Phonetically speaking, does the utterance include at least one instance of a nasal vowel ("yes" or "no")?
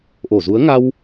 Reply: no